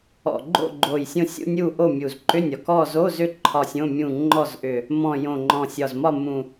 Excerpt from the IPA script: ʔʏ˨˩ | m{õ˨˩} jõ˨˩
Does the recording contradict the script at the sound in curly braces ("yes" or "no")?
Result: yes